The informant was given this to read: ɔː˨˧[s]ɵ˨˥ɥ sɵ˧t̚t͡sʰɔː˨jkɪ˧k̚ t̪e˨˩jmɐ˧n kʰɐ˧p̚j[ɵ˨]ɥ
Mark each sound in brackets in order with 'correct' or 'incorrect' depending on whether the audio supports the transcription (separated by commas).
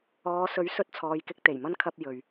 correct, correct